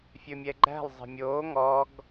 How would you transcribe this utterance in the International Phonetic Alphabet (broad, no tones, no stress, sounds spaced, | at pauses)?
fʲ ɵ mʲ ɛ ɡ͡ǃ æ̤ lˠ zˤ ɛ̤ mʲ oː ŋ ɔ ɡ